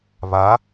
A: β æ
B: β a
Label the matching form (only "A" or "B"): B